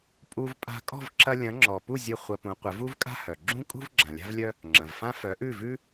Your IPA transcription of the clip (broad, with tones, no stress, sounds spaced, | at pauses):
pʼ u˧ v pʼ a̤˧ kʼ ɔ̤˥˩ v ǁ ɐ˧ lʲ ɐ̃˩˥ ŋ͡ǁ ɔ˩ p u˥˩ zʲ ɘ˥˩ χʷ ɐ˧ p ũ˩˥ qʷ ɘ˩˥ v u˥ v kʼ a̤˥ h œ˩ ɡ͡ǁ ũ˥ kʼ ṳ˥ v ɡ͡ǁ ã˩ lʲ a̤˥ v lʲ œ˥ | ŋ͡ǁ ɐ̃˩ v f ã˥ f œ˩˥ ʔ ʉ˥˩ v ʉ˥